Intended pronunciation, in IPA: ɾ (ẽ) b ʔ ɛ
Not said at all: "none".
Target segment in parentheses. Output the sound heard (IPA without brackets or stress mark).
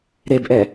e